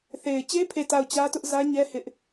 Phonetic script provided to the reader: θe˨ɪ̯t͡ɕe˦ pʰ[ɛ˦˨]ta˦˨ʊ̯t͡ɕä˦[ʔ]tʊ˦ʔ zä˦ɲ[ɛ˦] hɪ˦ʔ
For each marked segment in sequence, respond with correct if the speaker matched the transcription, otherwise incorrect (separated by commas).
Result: incorrect, incorrect, correct